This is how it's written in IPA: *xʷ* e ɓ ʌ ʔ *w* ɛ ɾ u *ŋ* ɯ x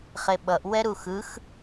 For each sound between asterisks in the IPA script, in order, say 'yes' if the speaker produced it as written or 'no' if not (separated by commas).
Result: no, yes, no